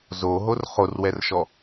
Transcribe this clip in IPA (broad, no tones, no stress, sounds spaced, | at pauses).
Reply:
z o ɦ o r χ o r w ɛ r ʃ ɔ